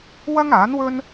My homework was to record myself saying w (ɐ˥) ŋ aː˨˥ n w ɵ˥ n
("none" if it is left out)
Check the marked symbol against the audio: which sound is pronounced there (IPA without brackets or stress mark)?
ɐ˥